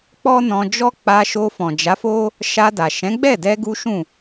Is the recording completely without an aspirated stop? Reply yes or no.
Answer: yes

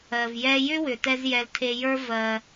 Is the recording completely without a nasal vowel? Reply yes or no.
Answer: yes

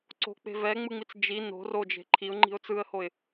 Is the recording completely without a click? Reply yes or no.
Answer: no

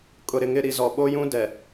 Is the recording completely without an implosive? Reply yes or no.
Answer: no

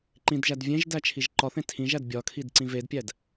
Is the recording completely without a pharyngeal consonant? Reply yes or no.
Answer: yes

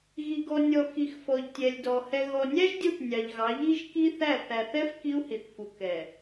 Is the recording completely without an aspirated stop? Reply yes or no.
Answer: yes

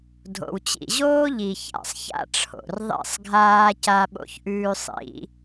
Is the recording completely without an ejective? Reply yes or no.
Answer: yes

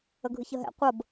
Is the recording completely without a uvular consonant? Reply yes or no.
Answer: no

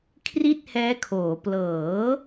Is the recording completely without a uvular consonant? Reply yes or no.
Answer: yes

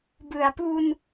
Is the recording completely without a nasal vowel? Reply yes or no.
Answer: yes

